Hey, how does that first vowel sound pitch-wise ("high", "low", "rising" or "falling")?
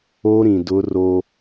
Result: high